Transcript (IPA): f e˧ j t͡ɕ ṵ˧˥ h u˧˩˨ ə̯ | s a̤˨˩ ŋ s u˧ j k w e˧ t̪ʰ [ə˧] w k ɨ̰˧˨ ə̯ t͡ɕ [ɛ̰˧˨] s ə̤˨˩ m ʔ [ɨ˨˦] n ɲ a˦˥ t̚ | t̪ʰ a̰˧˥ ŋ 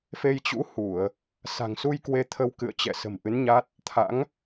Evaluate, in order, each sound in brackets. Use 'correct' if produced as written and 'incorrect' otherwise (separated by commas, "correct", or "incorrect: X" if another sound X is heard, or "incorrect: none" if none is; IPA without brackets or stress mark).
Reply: correct, correct, correct